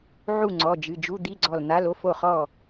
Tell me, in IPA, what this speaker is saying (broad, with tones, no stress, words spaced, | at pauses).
ʕu˥˩ŋ͡ǀɔ˩˧˩d͡ʒɨ˩˧˩d͡ʒu˧˥˧ d̪i˧˥˧ɡ͡ǀɔ˧˩ln̪a˧˥˧lo˧˥˧f o˥˩χɔ˥˩